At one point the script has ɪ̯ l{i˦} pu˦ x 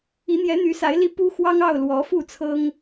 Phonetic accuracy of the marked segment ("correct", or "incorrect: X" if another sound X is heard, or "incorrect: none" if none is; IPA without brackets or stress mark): correct